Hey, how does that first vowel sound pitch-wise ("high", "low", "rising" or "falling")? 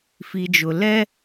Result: low